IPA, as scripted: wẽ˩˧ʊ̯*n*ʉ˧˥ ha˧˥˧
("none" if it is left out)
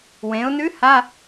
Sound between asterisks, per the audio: n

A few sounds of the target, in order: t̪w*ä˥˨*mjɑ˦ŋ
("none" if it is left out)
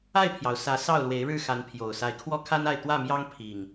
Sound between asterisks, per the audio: ä˥˨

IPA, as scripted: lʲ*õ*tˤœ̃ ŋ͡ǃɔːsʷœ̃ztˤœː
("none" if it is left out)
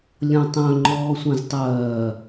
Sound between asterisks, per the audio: õ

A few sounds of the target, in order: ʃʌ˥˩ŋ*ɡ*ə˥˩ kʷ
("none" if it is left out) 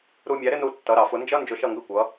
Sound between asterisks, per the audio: ɡ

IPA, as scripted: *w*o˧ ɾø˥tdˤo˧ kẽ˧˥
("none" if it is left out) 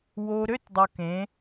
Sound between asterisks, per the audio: w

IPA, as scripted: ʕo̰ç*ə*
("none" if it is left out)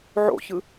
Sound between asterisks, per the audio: ɯ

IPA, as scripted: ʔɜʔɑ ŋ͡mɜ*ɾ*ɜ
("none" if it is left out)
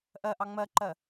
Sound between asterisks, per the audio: ǃ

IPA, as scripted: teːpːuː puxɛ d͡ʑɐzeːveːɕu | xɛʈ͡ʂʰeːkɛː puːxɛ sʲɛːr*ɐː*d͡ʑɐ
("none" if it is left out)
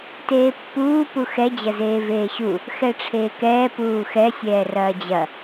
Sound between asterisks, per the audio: ɐː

